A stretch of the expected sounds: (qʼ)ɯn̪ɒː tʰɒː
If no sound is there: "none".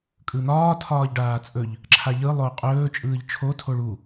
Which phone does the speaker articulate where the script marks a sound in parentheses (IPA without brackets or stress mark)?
kʼ